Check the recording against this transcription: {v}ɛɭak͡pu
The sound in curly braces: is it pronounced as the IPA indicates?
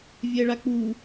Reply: no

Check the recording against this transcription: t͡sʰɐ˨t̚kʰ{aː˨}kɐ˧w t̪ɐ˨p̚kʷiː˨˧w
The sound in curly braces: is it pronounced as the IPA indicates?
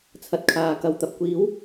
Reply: yes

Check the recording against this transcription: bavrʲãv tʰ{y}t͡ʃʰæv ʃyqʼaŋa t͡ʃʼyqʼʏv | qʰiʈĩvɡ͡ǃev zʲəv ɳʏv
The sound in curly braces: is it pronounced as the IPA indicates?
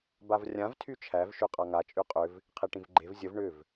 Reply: yes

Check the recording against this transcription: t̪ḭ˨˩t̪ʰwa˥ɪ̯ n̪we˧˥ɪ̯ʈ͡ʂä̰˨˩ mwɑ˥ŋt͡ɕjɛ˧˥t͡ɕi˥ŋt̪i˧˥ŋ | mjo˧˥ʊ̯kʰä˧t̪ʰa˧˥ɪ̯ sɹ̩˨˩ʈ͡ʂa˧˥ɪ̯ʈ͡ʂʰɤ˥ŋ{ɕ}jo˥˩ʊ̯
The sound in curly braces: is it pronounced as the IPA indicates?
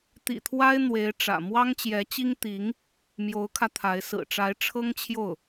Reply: no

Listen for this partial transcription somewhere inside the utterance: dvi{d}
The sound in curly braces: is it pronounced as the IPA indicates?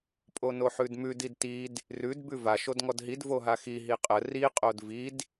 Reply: yes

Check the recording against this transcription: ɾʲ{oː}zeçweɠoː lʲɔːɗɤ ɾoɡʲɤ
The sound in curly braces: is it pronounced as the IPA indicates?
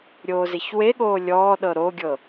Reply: yes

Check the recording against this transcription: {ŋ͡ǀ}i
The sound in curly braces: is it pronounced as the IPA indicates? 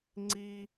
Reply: yes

